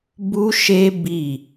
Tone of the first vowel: high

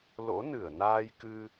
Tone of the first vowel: rising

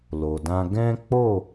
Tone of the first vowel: low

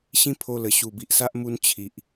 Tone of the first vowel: high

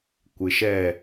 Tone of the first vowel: low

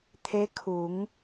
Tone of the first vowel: rising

